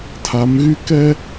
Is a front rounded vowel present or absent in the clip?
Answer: present